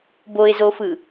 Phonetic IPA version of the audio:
boɪ̯zofɯ

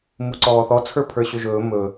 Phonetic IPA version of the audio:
muǀɔːθɔ t͡sʰə˞pʰə˞ɕɵʒɵː mɵ

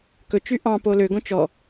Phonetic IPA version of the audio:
kɵt͡ʃy ʔɑ̃po løɡõ t͡ʃɔ

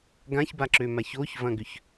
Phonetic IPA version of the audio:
ɡãçbaǁøma çoçvɐ̃ɡʏç

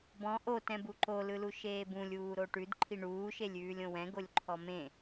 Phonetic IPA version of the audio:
bɔ̃ ʔo tɛ̃buǃo lɯluʃeːbũlʲ uːɾoʈʉd ǃʰiɳuːʃelʲʉːlʲ õwɛ̃ɡolʲǃʰɔ mẽ

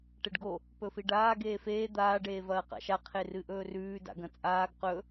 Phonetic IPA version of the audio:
ʈeɖɡo | pɵfiɖaː ɡeːfeː d̪aː ɖeːvɐːqa̰ʃa qʰerɨʔɵːrʉː da̰ɡɐ̃t͡sʼaːɡ qɵ

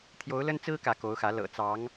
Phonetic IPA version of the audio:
t̪ʰjo˧˥ʊ̯lə˥nt͡sɹ̩˥ kä˧˥ko˧˥ʊ̯xä˧˥ lɤ̰˨˩ t͡sɑ˧˥ŋ

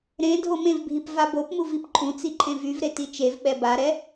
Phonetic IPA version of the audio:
ɾẽ dʱomẽvbʱip vabopmu vipǃʼũt͡si ǃʼẽvyvɾe tit͡ʃevɓɛ baɾɛ

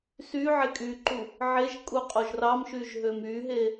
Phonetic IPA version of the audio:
sy ʕekʼyǃu | ʕeʒ kʼuqʼoʒrɑmʃyʒ ɦømyɦe

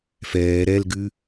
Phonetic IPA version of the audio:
fɛː ɾɛlɡʉ

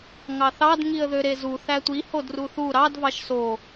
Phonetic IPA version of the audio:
ŋɑθɑd ŋiə̯ðøɾezu θætʷi hodruθu ɾɑd vɑʃso

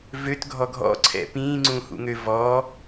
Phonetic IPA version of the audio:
vøtɡʱɔ ɡʱɔ̰ǀʰɛ̰ pĩːŋ͡ǀũhṵŋø vɔː

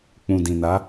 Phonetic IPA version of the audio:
k͡pũ˨dĩ˨na˨˦

